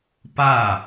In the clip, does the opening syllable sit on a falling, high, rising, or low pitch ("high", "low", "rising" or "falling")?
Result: falling